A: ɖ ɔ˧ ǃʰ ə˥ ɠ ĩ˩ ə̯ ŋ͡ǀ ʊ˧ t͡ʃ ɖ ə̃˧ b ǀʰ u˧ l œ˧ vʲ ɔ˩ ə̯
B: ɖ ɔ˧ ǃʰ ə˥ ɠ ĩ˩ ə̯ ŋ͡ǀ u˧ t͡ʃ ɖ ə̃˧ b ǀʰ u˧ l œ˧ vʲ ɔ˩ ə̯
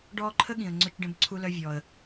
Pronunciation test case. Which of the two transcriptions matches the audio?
A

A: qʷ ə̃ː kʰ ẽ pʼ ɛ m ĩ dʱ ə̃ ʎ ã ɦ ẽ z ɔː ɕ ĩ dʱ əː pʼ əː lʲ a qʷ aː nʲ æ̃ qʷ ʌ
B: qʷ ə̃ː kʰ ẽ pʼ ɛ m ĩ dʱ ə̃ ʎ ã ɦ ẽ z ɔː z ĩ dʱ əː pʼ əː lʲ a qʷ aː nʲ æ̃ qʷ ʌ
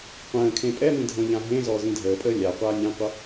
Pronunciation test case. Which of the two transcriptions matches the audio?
B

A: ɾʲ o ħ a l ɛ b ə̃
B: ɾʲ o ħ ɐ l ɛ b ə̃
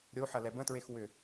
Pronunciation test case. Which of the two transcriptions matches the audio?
B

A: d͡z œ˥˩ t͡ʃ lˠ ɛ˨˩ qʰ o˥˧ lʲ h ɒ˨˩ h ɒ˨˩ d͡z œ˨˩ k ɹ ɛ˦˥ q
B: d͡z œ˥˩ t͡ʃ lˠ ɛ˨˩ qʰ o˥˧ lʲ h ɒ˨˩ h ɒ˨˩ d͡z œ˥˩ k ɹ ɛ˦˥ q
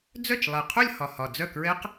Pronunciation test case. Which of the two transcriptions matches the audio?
B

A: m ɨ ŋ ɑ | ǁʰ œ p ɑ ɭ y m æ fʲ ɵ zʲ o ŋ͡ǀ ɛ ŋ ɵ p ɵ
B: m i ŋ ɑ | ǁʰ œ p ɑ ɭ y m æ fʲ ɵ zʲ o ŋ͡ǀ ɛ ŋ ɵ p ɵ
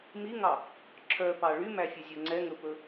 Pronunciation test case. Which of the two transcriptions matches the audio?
B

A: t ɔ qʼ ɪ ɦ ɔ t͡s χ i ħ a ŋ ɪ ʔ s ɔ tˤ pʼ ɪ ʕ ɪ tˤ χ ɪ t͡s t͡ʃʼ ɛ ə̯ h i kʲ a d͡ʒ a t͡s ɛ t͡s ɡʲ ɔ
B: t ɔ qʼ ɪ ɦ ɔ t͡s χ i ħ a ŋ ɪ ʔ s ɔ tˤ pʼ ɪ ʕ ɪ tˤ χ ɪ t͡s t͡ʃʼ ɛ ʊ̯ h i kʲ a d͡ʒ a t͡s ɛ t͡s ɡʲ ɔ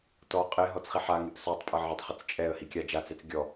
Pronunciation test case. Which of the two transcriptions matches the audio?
A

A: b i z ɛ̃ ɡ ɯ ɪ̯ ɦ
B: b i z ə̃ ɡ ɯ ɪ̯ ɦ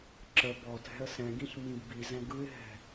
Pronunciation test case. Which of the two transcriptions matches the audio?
A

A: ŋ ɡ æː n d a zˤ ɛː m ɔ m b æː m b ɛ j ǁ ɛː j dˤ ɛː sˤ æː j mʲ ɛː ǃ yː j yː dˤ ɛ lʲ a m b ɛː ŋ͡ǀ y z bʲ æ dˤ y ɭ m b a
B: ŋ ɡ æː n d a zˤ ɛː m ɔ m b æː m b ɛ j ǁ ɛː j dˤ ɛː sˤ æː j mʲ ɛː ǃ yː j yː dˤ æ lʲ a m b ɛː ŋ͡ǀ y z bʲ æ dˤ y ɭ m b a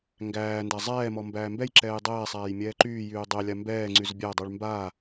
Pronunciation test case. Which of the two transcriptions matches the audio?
A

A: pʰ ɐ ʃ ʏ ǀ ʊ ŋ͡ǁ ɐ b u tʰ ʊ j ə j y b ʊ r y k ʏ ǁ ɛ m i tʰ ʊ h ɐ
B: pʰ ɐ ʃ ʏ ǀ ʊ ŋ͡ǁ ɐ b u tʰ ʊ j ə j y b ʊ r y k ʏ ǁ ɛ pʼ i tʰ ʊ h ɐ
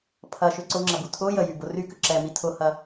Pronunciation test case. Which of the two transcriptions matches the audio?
A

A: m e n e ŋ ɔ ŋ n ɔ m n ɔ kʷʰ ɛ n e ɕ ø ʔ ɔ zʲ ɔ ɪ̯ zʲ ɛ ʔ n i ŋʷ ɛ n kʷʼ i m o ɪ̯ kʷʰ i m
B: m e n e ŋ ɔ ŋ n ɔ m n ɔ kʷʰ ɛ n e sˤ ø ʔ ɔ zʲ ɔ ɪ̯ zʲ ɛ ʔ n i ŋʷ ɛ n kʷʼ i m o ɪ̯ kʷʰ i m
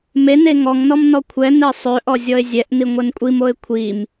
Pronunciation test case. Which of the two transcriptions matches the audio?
B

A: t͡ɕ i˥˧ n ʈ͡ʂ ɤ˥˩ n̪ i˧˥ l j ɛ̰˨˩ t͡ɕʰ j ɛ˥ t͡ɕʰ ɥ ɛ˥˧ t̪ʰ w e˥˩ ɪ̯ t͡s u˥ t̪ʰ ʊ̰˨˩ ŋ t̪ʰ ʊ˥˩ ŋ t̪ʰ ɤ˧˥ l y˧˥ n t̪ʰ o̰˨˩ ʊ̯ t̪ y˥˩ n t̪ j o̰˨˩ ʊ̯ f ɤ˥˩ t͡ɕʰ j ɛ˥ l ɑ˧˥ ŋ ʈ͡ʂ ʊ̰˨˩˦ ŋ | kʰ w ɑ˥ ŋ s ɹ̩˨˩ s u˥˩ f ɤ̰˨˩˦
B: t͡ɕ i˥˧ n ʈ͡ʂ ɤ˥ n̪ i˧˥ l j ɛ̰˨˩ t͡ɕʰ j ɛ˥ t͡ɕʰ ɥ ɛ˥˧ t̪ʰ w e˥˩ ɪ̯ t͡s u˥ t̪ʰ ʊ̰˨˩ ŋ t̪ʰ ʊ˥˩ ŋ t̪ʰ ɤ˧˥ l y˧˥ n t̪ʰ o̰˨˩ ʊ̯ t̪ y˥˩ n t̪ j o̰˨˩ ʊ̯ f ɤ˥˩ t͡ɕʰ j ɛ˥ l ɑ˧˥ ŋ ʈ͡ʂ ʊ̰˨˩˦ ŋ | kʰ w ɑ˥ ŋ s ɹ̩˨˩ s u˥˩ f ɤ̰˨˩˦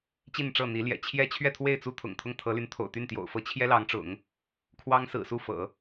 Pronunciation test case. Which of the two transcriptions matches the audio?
A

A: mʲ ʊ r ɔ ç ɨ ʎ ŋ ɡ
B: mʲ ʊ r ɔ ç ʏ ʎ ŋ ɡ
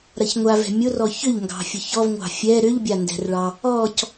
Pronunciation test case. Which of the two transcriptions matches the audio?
B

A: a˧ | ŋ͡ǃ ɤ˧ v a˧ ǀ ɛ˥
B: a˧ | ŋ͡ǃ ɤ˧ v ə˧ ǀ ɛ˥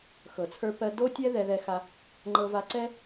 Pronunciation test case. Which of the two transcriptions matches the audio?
A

